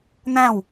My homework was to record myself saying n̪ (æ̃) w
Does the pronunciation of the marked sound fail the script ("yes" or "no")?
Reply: no